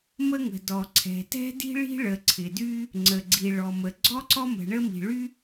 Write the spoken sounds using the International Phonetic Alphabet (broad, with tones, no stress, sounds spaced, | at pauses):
m ə˥ ŋ ə̤˩ d ɔ˩ ǀʰ ɛ̤˩ t ɛ̤˥ d i̤˥ ɭ i̤˥ ɭ ə˩ ǀʰ ɪ˩ d y˥ | ŋ͡ǀ ə˩ ɡ͡ǀ i˩ ɭ ɔ˩ m ə˩ ɡ͡ǀ ɔ˥ ǀ ɔ˥ m ə̤˩ ɳ ə˥ m i̤˩ ɭ y˥